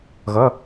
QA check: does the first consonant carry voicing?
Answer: yes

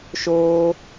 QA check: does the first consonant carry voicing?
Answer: no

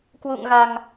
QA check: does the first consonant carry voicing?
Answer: no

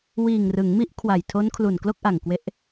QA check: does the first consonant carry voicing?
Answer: yes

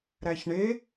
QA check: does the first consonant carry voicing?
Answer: yes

